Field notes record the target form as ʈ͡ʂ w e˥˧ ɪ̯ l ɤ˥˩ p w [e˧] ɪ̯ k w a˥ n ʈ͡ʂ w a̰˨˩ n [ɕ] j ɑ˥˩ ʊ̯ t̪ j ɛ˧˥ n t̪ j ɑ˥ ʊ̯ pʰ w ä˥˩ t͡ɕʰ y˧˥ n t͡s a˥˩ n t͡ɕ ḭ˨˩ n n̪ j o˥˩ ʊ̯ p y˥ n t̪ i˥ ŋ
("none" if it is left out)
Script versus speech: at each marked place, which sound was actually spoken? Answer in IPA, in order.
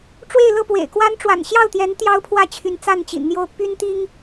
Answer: ḛ˨˩, ɕ

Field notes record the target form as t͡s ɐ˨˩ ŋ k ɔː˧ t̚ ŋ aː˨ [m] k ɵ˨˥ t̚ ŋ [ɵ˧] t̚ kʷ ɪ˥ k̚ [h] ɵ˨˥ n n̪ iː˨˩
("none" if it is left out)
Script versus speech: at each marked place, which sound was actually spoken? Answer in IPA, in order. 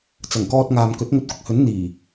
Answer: m, ɵ˧, h

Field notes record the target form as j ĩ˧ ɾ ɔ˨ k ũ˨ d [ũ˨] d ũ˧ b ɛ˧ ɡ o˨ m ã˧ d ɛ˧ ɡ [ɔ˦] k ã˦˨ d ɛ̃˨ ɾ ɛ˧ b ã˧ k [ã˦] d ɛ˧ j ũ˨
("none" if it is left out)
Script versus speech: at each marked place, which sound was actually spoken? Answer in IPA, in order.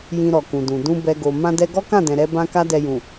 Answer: ũ˨, ɔ˦, a˦

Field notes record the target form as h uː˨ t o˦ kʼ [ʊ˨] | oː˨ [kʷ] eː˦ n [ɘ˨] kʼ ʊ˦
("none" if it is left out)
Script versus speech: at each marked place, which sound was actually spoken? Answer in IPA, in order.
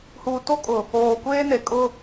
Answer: ʊ˨, kʷ, e˨

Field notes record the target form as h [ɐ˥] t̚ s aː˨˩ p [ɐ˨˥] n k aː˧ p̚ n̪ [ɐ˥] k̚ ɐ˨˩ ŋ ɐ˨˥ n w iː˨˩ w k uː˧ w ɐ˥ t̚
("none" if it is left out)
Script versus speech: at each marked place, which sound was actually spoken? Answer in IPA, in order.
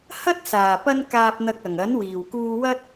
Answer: ɐ˥, ɐ˥, ɐ˧

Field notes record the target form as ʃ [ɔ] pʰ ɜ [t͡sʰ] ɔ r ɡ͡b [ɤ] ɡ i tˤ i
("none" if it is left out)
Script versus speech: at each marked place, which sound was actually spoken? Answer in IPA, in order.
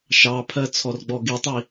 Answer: ɑ, t͡sʰ, ɔ

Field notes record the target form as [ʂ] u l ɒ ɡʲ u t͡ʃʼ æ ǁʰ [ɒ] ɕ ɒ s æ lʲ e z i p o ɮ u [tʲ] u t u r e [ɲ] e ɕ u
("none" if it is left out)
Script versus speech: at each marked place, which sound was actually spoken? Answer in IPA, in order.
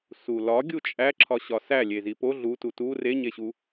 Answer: s, ɒ, t, ɲ

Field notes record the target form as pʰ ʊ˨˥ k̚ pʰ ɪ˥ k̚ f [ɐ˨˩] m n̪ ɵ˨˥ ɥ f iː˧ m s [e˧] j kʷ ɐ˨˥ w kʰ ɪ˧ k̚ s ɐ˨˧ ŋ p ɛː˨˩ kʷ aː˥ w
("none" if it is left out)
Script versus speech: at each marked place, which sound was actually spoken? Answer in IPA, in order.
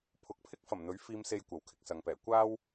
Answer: ɐ˨˩, e˧

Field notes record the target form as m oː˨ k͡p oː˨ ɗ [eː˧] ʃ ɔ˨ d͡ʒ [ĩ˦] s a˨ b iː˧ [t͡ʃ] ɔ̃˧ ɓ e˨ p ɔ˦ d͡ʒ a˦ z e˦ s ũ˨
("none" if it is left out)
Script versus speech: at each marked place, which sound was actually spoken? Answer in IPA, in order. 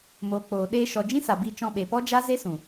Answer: eː˧, ĩ˦, t͡ʃ

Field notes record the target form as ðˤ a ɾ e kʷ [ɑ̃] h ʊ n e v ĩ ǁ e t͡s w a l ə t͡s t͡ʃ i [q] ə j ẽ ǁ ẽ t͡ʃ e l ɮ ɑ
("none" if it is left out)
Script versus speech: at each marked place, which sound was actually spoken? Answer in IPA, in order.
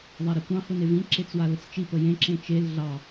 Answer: ɑ̃, p

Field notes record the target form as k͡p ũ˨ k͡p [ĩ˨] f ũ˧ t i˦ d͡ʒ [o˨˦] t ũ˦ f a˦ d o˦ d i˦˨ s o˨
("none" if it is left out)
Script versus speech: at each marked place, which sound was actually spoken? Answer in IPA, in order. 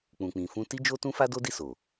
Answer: ĩ˨, o˦

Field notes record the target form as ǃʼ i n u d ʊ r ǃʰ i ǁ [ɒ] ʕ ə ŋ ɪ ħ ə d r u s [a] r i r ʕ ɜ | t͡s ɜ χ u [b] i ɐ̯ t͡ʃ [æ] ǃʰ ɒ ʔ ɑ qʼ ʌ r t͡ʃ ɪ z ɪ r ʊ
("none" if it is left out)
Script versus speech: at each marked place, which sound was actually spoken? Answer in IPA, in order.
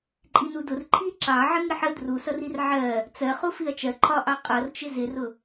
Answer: ɑ, ʌ, f, ɜ

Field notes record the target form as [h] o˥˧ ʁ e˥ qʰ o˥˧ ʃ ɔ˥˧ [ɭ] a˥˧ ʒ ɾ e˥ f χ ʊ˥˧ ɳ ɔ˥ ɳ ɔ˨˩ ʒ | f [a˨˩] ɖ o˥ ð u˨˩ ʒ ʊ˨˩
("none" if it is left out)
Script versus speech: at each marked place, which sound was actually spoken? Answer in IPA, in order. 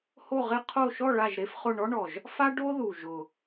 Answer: h, ɭ, a˥

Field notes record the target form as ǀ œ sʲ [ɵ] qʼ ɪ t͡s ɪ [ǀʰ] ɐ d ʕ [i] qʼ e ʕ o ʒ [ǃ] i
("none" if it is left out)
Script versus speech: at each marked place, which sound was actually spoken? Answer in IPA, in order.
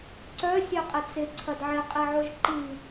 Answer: œ, ǀʰ, ɪ, ǃ

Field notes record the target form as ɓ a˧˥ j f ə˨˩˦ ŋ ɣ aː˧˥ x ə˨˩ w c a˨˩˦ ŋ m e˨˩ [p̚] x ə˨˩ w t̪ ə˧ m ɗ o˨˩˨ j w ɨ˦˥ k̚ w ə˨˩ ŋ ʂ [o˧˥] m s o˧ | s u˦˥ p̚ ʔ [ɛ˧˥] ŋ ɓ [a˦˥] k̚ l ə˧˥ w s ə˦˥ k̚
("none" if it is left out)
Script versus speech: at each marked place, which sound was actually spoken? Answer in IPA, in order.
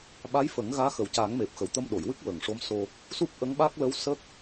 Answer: p̚, o˧˥, ə˧˥, a˦˥

